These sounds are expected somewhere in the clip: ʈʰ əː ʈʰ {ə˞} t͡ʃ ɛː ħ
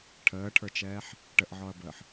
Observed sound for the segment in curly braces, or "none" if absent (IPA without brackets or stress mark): ə˞